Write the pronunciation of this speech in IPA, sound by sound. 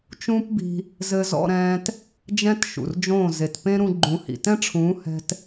t͡ʃ ũː˦ p b i̤˧ | z ɘ˧ z ɔ̰˧ ɾ ɛ̃ː˧ t | d͡ʒ ɛ̃˦ t ʃ ṵ˨ r d͡ʒ õː˦˨ z e˨ t p ẽ˦ ɾ ũ˦ ɡ͡ǃ ũ˨˦ h ḭ˨ t ɛ̃˦ ʈ͡ʂʰ ũː˨˦ h ɛ̤˧ t

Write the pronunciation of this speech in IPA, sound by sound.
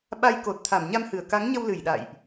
ɓ a˧ j k o˨˩ t̚ t̪ʰ a˧˩ m ɲ a˧ m h ɨ˧˩ ə̯ k a˨˦ ŋ ɲ ə˧ w l ɨ˧˩ j ɗ a̰˧˨ j ʔ

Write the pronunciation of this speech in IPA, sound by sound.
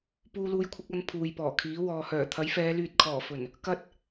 p uː˧ l uː˧ j kʷʰ ɪ˧ k̚ ɐ˧ n pʰ uː˨ j p ɔː˨˩ kʰ iː˨˥ w ɔː˨ h œː˨˩ t̪ʰ ɐ˨˥ j f ɛː˨˧ l yː˧ t̚ kʰ ɔː˨˩ f ɵ˨˩ n | k ɐ˥ t̚

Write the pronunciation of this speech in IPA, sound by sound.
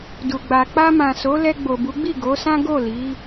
d u˨ ɡ͡b a˨ k͡p a˧ m ã˨ s o˨˦ l ɛ˧ ɡ͡b o˨ b u˨˦ ɡ͡b i˦˨ ɡ o˨˦ s ã˦ ɡ o˦˨ l i˨˦

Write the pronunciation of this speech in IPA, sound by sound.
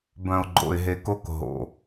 b œ̃˨ ʊ̯ ɡ͡ǃ o̰˨ ɪ̯ ɦ e˨ k o˦ k ɦ o̰˨

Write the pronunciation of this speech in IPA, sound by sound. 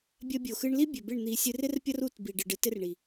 bʲ ɐ˧ bʲ o˨ x ɨ˧ ɳ l i˦ bʲ ɵ˨ b ɪ˦˨ ɳ n̪ i˧ sʲ ɨ˧ r ɪ˦ r pʲ ɐ˦ r u˧ t b i˨ ɖ ɨ˨ ɖ ɪ˦ t ɪ˦ r ɳ i˨

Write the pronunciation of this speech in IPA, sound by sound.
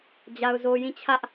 d͡ʑ a˦ ʊ̯ z o˦ j ĩ˦˨ t͡ɕʰ ä˦ ʔ

